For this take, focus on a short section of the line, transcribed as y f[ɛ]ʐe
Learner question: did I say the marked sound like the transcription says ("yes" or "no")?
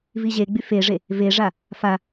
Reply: no